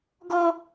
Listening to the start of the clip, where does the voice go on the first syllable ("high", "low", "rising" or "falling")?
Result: high